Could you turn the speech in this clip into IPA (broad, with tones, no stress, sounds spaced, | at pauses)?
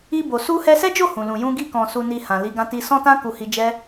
i˧ b o˨ s u˧ h ɛ˧ s ɛ˦ d͡ʒ o˦˨ h ũ˨ l ũ˨ j ũ˧ ɡ i˧ k ɔ̃˨ s u˨ n i˨ h ã˨ l i˨˦ ɡ ã˧ t i˧ s ɔ̃˦ t ã˦ k u˧ h i˧ d͡ʒ ɛ˦